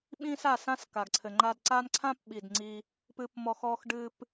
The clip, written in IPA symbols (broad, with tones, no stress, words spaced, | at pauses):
ɓĩ˦sa˦˨sã˦s ka˨ɡǀʰɘ˨ŋ͡ǃa˧dǀa˦n ǀʰã˦pɓi˨d ŋ͡ǀi˧ | pɨ˧pmɔ˧x ɔ˧xɖɨ˧p